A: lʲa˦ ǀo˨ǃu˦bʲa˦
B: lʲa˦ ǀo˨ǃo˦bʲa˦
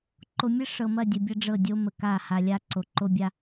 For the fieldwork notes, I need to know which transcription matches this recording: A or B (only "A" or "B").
B